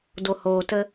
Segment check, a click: absent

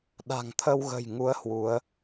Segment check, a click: absent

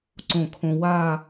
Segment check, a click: present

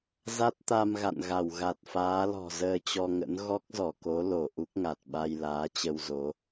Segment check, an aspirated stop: absent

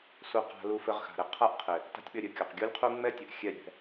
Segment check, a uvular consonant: present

